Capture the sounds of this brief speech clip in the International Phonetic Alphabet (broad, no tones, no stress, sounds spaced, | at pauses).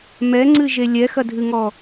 m ɛ ŋ͡ǀ ɨ ʒ e lʲ ɛ x ɐ dʱ ɨ ŋ ɔ